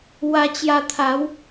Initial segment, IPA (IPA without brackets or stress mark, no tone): w